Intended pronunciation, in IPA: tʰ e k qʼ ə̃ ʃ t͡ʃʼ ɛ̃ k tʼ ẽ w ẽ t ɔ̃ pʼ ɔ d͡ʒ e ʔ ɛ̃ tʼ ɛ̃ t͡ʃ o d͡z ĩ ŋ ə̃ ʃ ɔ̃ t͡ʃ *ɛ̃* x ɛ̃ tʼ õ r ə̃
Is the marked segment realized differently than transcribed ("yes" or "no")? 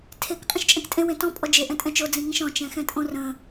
no